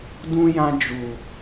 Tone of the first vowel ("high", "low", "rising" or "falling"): high